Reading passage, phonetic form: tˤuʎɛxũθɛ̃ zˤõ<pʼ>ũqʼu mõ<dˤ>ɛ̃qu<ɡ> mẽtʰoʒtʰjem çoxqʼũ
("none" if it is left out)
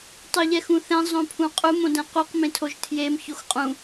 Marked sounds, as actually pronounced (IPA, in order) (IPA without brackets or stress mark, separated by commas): pʰ, d, q